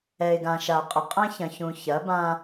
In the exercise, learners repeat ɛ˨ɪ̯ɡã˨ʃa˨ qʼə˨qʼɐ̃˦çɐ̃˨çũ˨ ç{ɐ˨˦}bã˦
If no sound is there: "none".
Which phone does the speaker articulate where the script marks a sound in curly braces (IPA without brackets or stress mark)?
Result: ɐ˨˦